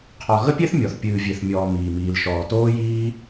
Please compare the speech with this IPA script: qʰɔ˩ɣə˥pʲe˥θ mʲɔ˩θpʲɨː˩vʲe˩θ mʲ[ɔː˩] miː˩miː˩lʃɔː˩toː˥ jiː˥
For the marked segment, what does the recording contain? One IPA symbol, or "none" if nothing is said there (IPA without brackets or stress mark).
ɔː˩